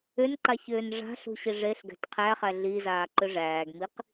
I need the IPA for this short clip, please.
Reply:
ʏ n ǃ a ç ʏː n ʐ a̤ ɬ ṳ ɕ i ʐ e ɬ ɡ æ̤ t qʰ æ χ æ ɮ i z aː ǃ ʏ ʐ æː ɡ m i q

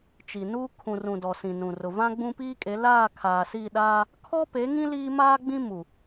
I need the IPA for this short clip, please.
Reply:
t͡ʃ i˨ n uː˦ kʰ ũ˨ r ũ˨ d ɔ˨ s ĩ˨ n ũ˨ r ʊ˨ v ã˦ ɡ͡b ũ˦ p iː˦ kʼ e˨˦ l aː˦˨ kʰ aː˨ s i˦˨ ɗ aː˦ | kʰ ɔ˦ p e˨˦ ŋ ĩ˦ l iː˦ m aː˦ ɡ͡b ĩ˦ m u˨

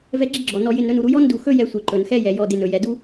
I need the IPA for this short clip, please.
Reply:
v ɛ˦ ɡ͡ǁ ɪ˥ ɡ͡ǁ ɔ˩ n ɔ˨ j ɪ˨ n ɾ ɵ˦ n u˩ ɾ u˦ j ɔ˥ n d u˨ x ɵ˥ j ɛ˦ sʷ ɛ˨ ǃ ɵ˩ n x ɛ˦ j ɛ˩ j ɔ˨ d ɪ˨ n ɵ˩ j ɛ˩ d u˥

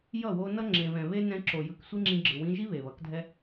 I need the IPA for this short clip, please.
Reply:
j ʌ˦˨ w o˧ n ʌ˦ ŋ͡ǁ ẽ˨ β ɛ̃˨ β e˦ n ɛ̃˧ ǁ o˨ j ɯ˨ k sʷ i˦ ŋ͡ǁ ĩ˧ ɡ͡ǁ ɯ˨ w ĩ˧ ʒ i˦ β e˨ β ʌ˨˦ k dʱ ɛ˦

